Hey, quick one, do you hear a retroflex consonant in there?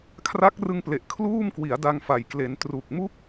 no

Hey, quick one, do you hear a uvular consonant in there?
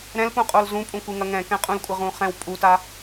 yes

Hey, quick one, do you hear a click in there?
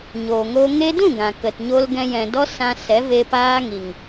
no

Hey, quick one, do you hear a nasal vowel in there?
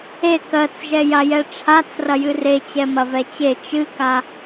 no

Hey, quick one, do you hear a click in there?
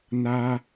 no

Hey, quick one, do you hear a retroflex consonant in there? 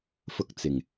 no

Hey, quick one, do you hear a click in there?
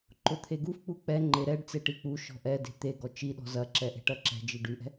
yes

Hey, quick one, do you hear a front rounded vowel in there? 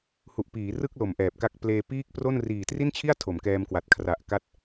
no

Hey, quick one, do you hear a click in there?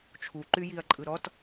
yes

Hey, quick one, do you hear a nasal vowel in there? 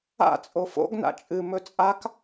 no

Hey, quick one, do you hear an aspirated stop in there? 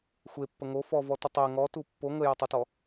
no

